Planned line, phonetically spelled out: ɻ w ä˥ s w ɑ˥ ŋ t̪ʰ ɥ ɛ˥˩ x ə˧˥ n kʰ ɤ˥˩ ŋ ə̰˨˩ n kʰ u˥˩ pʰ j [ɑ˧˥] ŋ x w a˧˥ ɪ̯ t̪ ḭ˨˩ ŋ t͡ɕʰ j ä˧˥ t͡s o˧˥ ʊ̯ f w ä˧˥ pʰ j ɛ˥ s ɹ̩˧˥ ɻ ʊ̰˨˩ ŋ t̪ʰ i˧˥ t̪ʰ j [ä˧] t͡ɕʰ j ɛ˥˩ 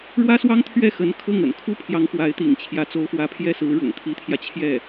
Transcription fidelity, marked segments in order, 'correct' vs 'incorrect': correct, correct

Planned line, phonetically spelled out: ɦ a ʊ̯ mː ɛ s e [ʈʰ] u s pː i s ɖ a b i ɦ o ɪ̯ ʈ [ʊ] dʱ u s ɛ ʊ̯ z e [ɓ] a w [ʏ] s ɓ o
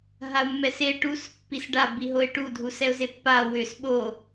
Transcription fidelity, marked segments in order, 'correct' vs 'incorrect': incorrect: ʈ, incorrect: u, incorrect: pː, correct

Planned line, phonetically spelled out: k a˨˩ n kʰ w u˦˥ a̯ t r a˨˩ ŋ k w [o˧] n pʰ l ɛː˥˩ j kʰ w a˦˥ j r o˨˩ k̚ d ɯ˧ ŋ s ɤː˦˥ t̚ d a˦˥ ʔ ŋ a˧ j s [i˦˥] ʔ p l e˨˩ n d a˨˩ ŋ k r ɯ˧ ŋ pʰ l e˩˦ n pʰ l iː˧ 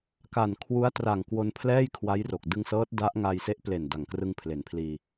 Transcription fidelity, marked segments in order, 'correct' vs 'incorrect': correct, incorrect: e˦˥

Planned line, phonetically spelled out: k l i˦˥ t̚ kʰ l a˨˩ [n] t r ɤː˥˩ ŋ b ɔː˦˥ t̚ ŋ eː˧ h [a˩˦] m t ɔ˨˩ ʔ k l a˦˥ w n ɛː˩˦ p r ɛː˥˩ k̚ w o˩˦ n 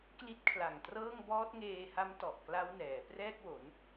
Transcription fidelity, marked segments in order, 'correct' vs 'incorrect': incorrect: ŋ, incorrect: a˦˥

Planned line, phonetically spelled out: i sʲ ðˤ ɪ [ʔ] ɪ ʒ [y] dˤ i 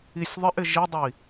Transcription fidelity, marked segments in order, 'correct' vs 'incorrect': correct, incorrect: i

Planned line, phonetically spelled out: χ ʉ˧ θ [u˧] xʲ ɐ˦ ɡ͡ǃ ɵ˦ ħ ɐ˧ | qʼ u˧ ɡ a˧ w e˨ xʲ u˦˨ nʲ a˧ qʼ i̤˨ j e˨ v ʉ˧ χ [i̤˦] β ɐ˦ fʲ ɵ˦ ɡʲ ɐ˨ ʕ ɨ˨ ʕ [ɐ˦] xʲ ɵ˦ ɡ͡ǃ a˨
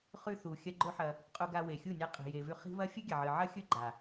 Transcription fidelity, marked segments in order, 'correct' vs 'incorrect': incorrect: u˨, correct, correct

